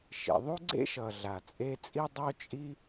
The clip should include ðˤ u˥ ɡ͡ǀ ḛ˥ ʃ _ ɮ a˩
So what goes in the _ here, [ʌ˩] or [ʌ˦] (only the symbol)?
ʌ˩